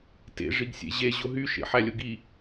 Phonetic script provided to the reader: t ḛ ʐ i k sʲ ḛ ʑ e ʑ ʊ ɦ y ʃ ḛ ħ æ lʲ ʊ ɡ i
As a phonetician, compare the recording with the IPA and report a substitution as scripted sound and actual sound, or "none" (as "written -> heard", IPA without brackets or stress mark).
k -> ɡ